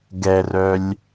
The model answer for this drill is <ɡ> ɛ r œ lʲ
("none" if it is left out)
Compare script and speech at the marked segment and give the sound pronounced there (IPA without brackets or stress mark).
ɡ